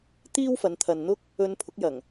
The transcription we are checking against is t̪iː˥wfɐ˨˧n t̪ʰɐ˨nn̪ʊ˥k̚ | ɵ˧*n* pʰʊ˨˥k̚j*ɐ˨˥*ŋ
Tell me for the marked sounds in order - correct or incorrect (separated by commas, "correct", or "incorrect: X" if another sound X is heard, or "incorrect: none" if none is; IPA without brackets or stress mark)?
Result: correct, incorrect: ɐ˨˩